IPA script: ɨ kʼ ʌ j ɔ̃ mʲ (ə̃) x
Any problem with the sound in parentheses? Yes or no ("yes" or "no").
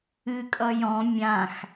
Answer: yes